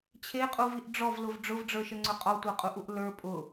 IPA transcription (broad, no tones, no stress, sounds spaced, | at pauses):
t͡ɕʰ e qʼ u v i ʔ ɖ͡ʐ ɔ v l ʊ v ɖ͡ʐ ʊ v ɖ͡ʐ ə˞ ʃ ə ŋ͡ǀ ʊ qʼ ɔ tʷ ə˞ qʼ u ʔ u ʔ l ə˞ pʼ ʊ